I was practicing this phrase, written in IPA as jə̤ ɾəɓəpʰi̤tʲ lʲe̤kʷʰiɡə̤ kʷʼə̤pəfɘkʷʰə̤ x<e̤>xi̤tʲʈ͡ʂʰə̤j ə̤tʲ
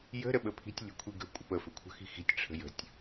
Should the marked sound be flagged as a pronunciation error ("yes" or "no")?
yes